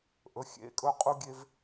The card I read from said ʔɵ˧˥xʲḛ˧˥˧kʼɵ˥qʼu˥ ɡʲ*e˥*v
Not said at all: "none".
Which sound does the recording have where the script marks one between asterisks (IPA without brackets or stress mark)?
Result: e˥